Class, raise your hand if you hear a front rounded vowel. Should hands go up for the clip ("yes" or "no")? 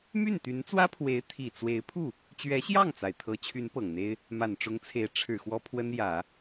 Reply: yes